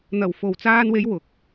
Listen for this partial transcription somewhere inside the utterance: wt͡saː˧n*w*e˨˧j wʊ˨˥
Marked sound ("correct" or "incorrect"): correct